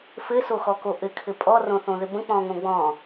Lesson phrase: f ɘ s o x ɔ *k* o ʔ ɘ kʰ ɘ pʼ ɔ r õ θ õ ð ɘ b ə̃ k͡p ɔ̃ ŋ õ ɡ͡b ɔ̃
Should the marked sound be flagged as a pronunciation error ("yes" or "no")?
no